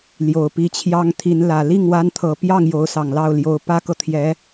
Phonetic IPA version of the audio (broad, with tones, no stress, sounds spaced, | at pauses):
l j o˨˩ ʊ̯ p i˧˥ t͡ɕʰ j ɑ˥ ŋ t̪ʰ i˧˥ n l ä˨˩ l i˥˩ ŋ w a˥ n t̪ʰ ɤ˧˥ p j ɑ˥˩ ŋ j o˧˥ ʊ̯ s ɑ˨˩ ŋ l ɑ˥˩ ʊ̯ l j o˧˥ ʊ̯ p ä˥ k ɤ˨ t̪ʰ j ɛ˧˥